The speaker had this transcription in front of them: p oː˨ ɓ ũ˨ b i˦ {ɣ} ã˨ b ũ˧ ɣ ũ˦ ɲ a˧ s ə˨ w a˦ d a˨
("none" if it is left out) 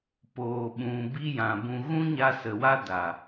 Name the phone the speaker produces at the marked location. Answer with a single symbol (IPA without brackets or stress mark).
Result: j